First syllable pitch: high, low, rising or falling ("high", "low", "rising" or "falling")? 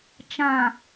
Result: low